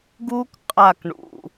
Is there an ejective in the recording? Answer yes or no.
yes